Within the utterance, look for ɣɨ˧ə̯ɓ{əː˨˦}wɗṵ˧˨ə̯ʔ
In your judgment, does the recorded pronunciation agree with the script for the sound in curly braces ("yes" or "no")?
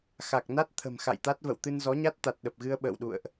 no